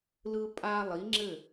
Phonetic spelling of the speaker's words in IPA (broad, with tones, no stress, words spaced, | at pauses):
lɯ˦pʼa˦ lˠi˨˦ŋ͡ǁɘ˦˨